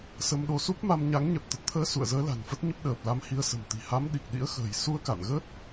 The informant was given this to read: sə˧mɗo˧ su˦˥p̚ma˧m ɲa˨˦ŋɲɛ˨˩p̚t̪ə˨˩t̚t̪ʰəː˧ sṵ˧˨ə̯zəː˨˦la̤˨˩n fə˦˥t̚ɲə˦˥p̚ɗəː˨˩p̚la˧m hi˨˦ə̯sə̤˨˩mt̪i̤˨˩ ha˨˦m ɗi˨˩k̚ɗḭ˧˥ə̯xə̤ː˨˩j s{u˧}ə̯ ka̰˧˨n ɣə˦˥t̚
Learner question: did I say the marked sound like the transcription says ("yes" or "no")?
yes